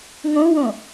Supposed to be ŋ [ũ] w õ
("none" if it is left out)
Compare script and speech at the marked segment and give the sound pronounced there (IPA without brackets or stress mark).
õ